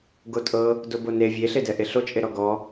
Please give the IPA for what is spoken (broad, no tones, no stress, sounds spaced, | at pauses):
ɡ o tʼ ɤ | d o b o n e vʲ e ɬ e d ɛ ʔ e ɬ o t͡ʃʼ e ɾ ɔ ɡ ɔ